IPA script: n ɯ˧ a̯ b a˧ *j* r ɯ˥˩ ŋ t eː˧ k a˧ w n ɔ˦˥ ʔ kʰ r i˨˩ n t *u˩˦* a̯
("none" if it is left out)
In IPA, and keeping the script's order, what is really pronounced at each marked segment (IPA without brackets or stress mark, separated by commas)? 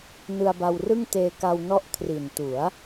w, u˩˦